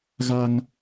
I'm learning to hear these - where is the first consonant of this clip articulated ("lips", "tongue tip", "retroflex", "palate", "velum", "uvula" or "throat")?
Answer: velum